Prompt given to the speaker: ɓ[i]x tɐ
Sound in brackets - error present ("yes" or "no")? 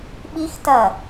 no